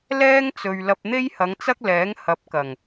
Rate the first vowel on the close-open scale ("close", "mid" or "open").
mid